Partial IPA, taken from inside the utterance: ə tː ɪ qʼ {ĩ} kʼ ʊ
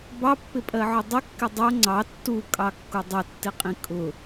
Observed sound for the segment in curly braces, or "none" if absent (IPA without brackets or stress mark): ĩ